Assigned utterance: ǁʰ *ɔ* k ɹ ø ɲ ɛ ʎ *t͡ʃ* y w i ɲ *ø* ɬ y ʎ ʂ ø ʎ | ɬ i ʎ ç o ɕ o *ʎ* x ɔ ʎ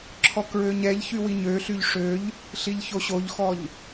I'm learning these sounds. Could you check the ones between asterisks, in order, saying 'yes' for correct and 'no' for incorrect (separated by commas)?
yes, no, yes, yes